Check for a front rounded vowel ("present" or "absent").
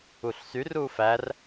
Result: present